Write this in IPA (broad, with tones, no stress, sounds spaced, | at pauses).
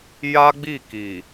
j a˦ ɡ͡b i˦˨ k i˨